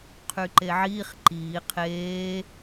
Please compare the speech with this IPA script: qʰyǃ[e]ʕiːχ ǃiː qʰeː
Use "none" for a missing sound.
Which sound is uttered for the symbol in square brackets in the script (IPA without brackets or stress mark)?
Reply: e